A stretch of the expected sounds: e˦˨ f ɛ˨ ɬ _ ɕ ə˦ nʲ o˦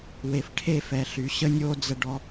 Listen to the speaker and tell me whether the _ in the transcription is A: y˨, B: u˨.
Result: A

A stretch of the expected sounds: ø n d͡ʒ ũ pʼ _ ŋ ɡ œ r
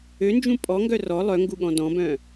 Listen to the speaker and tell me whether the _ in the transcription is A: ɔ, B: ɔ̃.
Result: A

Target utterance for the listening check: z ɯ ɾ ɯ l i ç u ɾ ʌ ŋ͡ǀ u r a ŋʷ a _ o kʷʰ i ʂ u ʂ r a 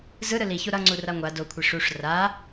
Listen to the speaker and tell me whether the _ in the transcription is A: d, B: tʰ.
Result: A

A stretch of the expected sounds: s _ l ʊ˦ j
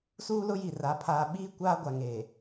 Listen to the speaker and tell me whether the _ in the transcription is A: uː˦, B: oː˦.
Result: A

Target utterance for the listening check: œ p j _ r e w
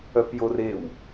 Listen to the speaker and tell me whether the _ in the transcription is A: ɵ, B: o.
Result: B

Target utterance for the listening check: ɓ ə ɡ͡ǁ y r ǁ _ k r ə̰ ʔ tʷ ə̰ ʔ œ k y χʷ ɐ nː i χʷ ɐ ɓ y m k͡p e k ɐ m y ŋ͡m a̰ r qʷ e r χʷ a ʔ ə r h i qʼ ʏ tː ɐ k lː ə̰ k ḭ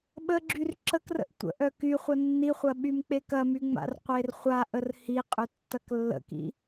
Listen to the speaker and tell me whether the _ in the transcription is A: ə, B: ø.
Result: A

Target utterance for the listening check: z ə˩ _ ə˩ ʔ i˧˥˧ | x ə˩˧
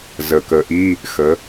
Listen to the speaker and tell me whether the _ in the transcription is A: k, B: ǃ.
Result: A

